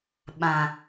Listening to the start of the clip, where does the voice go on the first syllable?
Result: low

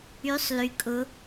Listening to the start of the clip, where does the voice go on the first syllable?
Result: rising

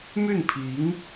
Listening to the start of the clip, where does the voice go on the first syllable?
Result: falling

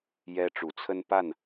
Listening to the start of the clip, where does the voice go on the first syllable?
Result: high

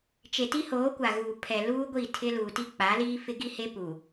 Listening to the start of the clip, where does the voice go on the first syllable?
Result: low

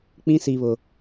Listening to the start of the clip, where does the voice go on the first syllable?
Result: high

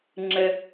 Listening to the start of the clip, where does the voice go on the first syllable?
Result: high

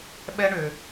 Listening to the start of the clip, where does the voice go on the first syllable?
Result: high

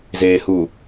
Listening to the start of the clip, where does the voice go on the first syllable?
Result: low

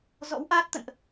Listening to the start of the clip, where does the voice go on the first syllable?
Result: rising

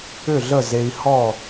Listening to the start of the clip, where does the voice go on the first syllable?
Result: falling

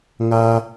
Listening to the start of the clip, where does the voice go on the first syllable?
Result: high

